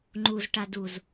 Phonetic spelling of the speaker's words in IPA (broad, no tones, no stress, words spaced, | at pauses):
ŋ͡ǃuzʈa duz